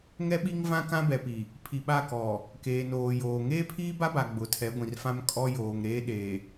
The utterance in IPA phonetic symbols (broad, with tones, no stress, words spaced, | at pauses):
ŋɛ˦ ɓi˦ŋvã˦ kã˦bɛ˨pi˨ | pʰi˨ɓa˦˨kɔ˨ | keː˨noː˨ joː˨ ŋeː˦pʰiː˦ba˦ba˨ ɡ͡bʊ˨tʰɛ˨˦ɡʷĩ˨r fã˦m kʼɔ˦ joː˨ŋɾeː˦ɗeː˨